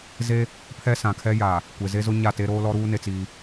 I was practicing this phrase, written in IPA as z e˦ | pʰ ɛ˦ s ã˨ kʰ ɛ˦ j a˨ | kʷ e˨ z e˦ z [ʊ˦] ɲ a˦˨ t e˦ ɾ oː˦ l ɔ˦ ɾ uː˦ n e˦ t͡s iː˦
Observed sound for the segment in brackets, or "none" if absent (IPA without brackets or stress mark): ʊ˦